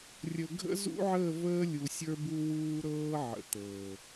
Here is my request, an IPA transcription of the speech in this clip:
rʲ ə˨ ɡʱ ə̰˦ z ṵ˦ ʕ əː˦˨ v əː˦ lʲ u˨ sʲ ə˞˦ b u˦ w uː˦ ɾ ɤː˦ ʕ ə̰˨ t̪ ɤː˨

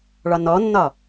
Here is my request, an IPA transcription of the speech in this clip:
ɭ ɒ n ɔ nː ɒ

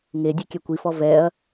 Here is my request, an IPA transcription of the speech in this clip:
ŋ e dʲ ɛ kʲ ɛ kʷ i f ɔ v ɛ ɐ̯

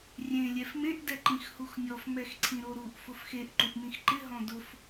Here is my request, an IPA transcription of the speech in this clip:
rʲ ẽ lʲ ɛ f m ẽ ʔ d ɛ ǃ ĩ x h u x nʲ ɔ f m ɛ x ǀʰ ĩ ɾ o ɾ u ʔ f ʊ f x e ʔ ǃ u ʔ m ĩ x ǃ ɪ ɦ ɔ̃ d ʊ f

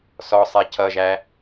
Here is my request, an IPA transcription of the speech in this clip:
s ɔ sˤ ɛ c ʌ ʒ æ

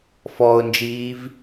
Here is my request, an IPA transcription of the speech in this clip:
f ɔ ʊ̯ n d͡ʒ iː v

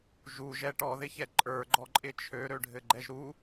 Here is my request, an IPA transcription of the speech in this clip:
ʒ u ʒ ɛ ʈ ɔ ð ɪ ç ɛ ǃʼ ə˞ ɡ͡ǃ ɔ ǃʼ ɪ t͡ʃʰ ø ɾ ø ɖʱ ɘ ɡ͡ǃ ɛ ʒ ɾ u

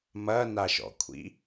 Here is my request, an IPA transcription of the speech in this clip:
m ɐ n a ʃ ɔ̰ kʷʰ ḭ

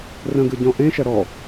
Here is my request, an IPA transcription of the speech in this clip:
r ə̃ ɡ ɯ ɟ ɔ̃ ʔ ẽ ʃ ɐ ɾ ɔ

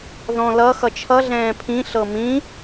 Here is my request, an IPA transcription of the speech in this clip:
ð ɔ̃ l ʌ x ʌ t͡ʃʰ ʌ ɮ ɛ̃ː pʰ ĩ ɬ ɤ m ĩ

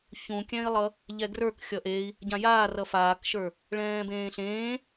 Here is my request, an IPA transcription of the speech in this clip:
ç ũ kʲ ɛ̃ i̯ lˠ ʌ | ʎ ɛ ɡ r ə˞ k xʲ ʌ ʔ e i̯ | ɟ ã j aː r ʌ f aː k ʃ ə˞ | ɭ ɛ̃ː b ẽː ɬ ẽː

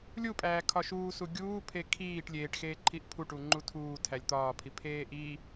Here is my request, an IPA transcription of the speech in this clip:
lʲ u pʼ æː kʰ ɒ ʃ uː s u ɡʲ uː pʰ e kʰ iː ʈ lʲ eː ʈ x eː ǃʰ i ʔ pʰ u ʈ u ŋ͡ǃ u tʰ uː tʰ æ lʲ t̪ ɒː pʰ i pʰ eː ʔ i

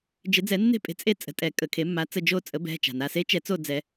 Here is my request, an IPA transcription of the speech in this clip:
d͡ʒ ɪ˨˩˦ d͡z ɛ˨˩˦ nː e̤˦˨ pʼ e̤˩˥ t͡sʼ e˦˥ t͡sʼ ə̤˩˧˩ tʼ ɛ˨˩˦ kʼ ə˩ kʰ e˨˩˦ mː a˩˥ t͡s ə˩˧˩ d͡ʒ o˦˨ t͡sʼ ə˩˥ b ɛ̤˩˧˩ t͡ʃ a̤˩ n a˩˧˩ s e˦˥ t͡ʃ ɛ˨˩˦ t͡s o˦˨ d͡z ɛ˨˩˦

